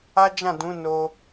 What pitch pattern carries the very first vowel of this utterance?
high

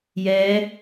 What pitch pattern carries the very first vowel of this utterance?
rising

